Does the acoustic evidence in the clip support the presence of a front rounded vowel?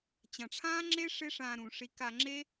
no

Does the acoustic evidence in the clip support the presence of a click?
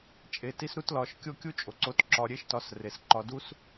yes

